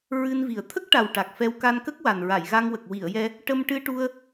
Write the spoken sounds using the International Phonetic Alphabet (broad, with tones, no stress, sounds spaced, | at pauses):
ɹ ɨ˧ n v i˨˩ ə̯ t̪ʰ ə˦˥ k̚ ʈ a˨˩ w ʈ a˨˩ k̚ f ɛ˧ w k a˧ n k ə˦˥ k̚ w a˨˩ n ɹ a˨˩˨ j ɣ a˧ ŋ w ə˨˩ k̚ w i˨˩˨ ə̯ j ɛ˧ | ʈ ə˧ m ʈ ɨ˧ ʈ u˧ ə̯